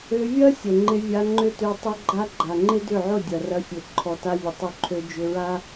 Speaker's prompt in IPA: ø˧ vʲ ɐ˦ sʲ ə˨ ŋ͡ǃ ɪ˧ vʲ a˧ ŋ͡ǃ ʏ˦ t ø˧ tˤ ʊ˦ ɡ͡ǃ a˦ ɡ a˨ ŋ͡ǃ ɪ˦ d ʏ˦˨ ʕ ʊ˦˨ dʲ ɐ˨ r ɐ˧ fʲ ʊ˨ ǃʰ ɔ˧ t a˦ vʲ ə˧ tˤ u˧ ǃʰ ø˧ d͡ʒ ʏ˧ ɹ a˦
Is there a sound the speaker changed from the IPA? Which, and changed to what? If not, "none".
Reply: ɡ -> ɡ͡ǃ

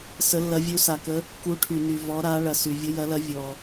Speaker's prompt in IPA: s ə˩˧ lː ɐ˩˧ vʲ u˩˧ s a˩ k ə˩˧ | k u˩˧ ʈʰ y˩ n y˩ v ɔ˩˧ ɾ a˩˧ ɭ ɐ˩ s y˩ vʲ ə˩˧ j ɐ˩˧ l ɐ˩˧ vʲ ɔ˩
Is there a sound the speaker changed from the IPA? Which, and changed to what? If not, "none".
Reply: none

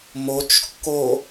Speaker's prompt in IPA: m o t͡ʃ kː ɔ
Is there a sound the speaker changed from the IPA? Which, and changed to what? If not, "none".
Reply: ɔ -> o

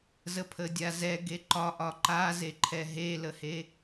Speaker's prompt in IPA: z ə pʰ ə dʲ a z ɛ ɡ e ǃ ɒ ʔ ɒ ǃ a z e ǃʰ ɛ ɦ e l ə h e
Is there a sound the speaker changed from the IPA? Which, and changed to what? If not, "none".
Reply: none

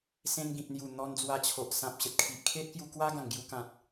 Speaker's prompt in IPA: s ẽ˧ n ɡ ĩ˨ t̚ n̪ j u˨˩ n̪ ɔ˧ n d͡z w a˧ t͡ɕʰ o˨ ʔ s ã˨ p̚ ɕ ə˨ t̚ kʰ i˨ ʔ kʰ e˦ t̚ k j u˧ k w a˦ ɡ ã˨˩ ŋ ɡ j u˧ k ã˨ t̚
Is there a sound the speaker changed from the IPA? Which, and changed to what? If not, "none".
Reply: none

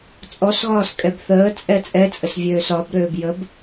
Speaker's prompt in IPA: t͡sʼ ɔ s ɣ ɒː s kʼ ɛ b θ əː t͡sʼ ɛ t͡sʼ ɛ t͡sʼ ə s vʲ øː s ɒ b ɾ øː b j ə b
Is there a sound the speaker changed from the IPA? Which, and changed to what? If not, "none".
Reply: none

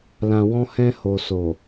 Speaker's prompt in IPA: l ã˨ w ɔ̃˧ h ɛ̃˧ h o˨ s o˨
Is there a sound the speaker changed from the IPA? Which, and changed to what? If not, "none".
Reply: none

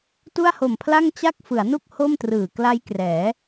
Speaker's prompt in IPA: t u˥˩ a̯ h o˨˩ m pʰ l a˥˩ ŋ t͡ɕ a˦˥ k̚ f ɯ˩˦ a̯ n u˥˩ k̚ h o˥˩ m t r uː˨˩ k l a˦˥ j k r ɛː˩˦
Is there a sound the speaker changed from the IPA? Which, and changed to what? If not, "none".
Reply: uː˨˩ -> ɯː˨˩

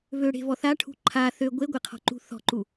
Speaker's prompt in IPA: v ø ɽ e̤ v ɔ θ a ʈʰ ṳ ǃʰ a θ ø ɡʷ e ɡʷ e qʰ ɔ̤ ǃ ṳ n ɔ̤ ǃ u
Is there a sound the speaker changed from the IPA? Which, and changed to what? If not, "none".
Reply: n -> θ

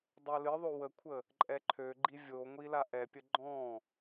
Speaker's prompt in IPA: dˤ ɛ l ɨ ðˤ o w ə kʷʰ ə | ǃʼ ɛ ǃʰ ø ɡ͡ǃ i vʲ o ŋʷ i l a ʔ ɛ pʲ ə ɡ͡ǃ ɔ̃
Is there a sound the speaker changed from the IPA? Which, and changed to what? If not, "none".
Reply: none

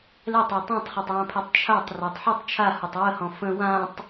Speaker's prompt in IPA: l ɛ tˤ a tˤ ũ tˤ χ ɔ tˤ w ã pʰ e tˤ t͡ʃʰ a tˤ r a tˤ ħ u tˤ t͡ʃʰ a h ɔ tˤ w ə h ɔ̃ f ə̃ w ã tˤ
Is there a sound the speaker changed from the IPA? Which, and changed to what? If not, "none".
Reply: none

